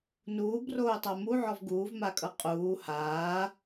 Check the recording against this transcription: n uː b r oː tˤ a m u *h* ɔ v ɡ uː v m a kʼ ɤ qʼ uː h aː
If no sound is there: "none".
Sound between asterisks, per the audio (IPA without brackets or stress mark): ʕ